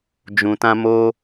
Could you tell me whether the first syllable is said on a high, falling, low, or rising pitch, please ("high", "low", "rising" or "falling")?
low